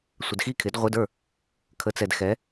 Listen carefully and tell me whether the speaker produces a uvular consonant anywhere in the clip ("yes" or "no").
yes